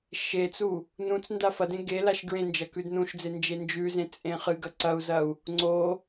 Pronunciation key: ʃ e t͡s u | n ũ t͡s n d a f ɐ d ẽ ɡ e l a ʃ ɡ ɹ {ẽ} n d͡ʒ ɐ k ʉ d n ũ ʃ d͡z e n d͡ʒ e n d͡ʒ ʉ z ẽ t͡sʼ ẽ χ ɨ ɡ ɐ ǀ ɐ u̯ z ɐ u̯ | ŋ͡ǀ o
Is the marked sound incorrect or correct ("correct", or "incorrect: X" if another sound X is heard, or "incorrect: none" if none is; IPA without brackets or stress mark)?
correct